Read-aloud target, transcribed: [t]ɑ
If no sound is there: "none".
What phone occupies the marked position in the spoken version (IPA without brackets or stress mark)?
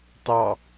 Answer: t